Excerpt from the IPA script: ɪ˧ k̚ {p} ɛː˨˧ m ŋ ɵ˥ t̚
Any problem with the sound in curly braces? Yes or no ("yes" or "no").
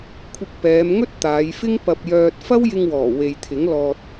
no